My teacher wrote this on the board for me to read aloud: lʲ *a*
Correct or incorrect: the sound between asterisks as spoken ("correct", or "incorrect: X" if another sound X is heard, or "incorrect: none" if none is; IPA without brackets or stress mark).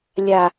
correct